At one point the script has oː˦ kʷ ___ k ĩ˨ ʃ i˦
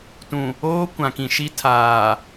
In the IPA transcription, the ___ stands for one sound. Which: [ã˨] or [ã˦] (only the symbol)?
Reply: ã˨